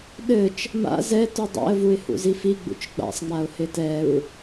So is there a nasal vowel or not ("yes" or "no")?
no